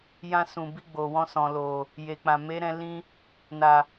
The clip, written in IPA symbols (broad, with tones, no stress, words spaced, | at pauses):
jã˧sũ˨bi˧ ɡ͡bo˨wɔ̃˧ sɔ̃˨ lo˨ | je˨k͡pã˨me˨˦ɾɛ̃˧ lĩ˧ | na˨